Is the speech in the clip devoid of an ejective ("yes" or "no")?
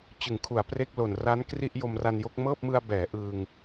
yes